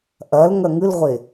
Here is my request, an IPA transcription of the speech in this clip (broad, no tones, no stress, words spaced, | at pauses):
ʔɐl ŋɐŋɨlʁʷe